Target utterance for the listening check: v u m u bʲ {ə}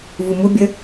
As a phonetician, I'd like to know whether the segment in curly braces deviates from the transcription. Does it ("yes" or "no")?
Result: no